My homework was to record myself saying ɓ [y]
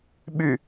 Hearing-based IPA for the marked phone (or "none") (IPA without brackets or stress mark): y